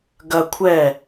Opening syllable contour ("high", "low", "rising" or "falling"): high